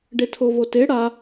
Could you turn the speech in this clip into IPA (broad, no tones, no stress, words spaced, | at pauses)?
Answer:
ɖetʰovote ɽa